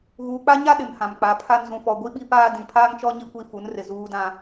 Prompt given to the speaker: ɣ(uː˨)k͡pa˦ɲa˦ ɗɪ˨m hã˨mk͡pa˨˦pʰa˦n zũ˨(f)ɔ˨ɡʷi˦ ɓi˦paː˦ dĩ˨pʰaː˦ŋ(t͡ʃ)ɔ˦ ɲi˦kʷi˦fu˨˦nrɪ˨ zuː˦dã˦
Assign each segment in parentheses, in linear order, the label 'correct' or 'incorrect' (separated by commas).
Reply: correct, correct, correct